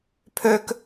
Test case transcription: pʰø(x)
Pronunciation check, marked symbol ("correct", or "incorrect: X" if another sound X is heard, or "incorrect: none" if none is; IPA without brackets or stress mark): incorrect: k